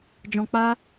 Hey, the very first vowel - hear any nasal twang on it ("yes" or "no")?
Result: yes